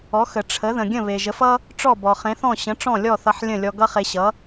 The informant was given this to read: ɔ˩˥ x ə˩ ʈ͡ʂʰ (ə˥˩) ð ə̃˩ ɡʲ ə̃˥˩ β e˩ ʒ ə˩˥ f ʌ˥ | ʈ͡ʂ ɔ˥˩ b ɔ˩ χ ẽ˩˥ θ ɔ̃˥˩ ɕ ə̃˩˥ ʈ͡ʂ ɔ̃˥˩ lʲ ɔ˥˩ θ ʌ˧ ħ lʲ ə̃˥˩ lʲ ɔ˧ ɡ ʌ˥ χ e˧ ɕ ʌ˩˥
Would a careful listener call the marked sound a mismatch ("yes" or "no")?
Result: yes